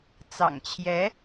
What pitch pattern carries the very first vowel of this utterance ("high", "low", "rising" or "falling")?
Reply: low